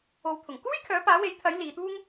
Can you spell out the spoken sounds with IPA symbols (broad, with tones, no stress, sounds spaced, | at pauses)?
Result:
o˨˧ w t̪ʰ ʊ˨˩ ŋ k uː˥ j kʰ œː˨˥ p aː˨˥ w e˨˥ j t̪ʰ ɐ˨˥ j l iː˨˧ t̪ uː˥ ŋ